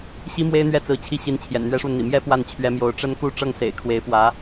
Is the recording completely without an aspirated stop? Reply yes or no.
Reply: no